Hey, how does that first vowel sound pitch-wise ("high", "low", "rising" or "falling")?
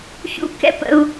high